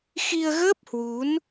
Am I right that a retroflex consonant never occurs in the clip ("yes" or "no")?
yes